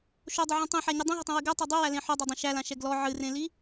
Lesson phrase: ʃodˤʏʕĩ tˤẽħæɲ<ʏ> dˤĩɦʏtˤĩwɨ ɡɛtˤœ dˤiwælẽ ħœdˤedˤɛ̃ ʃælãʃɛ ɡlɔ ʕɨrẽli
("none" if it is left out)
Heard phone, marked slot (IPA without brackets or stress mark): ɨ